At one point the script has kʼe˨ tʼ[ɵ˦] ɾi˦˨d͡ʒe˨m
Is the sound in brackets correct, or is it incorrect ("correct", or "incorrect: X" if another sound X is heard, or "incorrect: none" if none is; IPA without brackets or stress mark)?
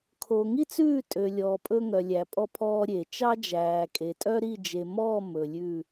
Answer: incorrect: œ˦